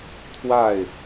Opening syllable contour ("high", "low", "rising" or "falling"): falling